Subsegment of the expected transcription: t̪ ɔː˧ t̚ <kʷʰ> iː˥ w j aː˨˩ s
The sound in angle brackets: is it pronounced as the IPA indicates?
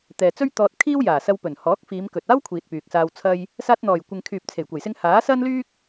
no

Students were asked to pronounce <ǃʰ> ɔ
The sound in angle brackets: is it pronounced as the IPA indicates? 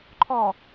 yes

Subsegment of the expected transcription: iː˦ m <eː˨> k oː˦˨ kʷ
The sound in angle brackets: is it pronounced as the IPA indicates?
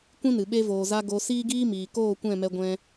no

